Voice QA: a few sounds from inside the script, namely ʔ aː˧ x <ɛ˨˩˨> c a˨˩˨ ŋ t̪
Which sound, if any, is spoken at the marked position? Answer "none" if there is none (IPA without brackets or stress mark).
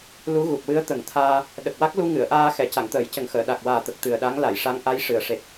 ɛ˨˩˨